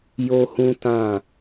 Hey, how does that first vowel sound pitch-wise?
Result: high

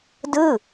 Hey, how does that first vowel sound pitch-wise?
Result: falling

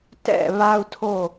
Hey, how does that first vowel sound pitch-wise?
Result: falling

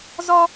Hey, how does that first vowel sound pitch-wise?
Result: high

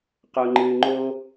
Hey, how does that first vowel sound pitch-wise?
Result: high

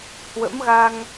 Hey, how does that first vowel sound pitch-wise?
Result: rising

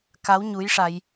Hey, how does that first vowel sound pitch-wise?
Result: rising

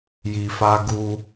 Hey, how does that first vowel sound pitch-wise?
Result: low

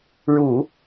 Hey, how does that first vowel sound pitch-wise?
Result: low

